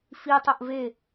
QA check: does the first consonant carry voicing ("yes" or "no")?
no